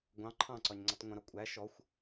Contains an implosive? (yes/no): no